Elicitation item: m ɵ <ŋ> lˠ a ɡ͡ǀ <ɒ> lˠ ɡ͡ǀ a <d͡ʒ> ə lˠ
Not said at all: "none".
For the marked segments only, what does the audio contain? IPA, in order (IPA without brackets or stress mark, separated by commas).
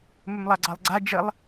m, ɑ, d͡ʒ